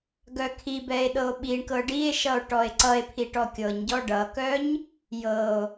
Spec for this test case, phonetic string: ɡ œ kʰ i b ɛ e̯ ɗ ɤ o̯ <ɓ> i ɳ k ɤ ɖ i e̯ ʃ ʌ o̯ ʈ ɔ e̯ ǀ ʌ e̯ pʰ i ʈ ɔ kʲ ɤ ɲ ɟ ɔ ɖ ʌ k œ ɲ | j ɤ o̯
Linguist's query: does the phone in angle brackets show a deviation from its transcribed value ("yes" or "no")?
no